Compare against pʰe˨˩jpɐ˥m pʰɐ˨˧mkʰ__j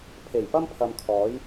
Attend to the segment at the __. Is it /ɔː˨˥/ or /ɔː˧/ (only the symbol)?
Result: ɔː˨˥